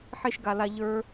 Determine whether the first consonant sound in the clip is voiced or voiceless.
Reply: voiceless